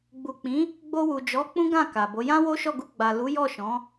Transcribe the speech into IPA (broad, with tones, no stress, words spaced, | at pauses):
ɡ͡bu˨k͡pĩ˨˦ | ɡ͡bo˧wu˨d͡ʒɔ˨˦ k͡pũ˦ɡã˦˨ ka˨bo˨˦ jã˦wo˦ ʃɔ˦˨ɡu˧ ɡ͡ba˨ lu˨˦ jɔ˦˨ʃɔ̃˨˦